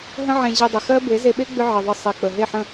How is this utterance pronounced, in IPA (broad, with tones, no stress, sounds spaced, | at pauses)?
ɦ ə̃˦ ʕ ẽ˧ ʑ i˧ dˤ ʏ˨ x ɜ˦ b e˨˦ z e˧ ɓ e˦ ɡ͡b ʏ˦ ʕ ɪ˨ ðˤ ə˧ sˤ i˨ k͡p ə˨ ɦ e˦˨ ħ ə̃˦˨